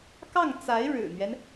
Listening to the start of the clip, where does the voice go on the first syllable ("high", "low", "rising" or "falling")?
falling